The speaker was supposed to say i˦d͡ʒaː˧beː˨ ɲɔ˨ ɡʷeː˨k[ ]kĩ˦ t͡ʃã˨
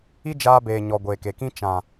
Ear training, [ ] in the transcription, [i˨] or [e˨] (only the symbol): e˨